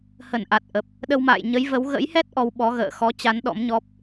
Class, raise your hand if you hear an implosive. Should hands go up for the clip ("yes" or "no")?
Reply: yes